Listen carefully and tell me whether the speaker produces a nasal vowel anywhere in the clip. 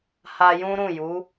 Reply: yes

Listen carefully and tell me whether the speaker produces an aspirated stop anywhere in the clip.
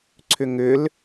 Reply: yes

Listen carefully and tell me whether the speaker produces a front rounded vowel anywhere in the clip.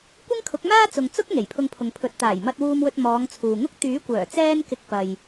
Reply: yes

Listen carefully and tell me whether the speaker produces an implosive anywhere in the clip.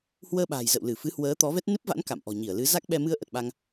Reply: yes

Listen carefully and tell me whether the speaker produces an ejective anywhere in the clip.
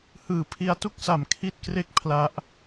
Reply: no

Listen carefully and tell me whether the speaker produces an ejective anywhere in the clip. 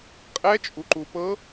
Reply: yes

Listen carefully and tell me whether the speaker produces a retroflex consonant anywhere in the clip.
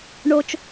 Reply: yes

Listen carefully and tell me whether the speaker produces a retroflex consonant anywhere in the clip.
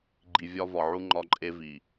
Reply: no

